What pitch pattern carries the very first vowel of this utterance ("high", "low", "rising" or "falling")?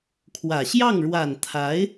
low